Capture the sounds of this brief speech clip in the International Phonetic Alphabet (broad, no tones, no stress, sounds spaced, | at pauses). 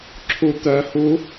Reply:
ǁʰ u t̪ œ h u